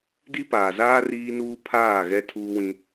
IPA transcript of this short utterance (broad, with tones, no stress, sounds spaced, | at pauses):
d i˦ p aː˨ z aː˦ r iː˦ n uː˦ pʰ aː˦˨ ɣ ɛ˦ tʰ uː˦ w ĩ˦